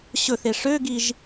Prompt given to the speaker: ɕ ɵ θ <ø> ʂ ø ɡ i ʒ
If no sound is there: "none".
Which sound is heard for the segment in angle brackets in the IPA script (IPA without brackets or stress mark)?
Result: e